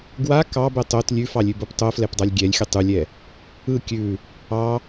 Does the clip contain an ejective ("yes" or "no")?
no